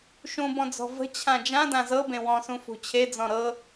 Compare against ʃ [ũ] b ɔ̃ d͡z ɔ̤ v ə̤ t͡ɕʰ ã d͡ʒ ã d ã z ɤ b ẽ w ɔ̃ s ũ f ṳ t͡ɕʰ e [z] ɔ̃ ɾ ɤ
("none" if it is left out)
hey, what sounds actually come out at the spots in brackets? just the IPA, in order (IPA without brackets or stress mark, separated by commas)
ũ, d͡z